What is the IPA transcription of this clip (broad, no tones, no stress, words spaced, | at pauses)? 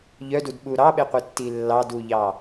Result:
ʎœdudɓu ɾɑɓeqʷitːi lːɑduʎɑ